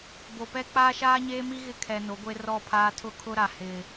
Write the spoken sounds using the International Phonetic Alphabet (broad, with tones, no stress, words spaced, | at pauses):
bo˨pɛ˦ k͡paː˦ʃaː˦ɲeː˦mi˦ ɣɪ˦kʰɛ˨ no˨˦ɡʷe˦ rɔ˦˨pʰaː˦ tʰʊ˦kʰʊ˦ɾa˨ hɪ˨